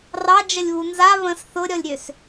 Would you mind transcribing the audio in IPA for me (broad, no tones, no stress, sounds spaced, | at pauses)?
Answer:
r ɑ d͡ʒ ə lʲ β u n z a β ə̃ s θ ʊ ɾʲ ɔ lʲ ɾʲ ø s